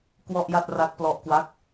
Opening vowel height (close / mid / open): mid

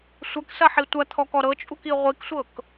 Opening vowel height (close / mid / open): open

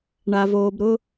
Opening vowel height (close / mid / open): open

